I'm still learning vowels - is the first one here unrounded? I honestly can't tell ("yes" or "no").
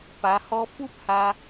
yes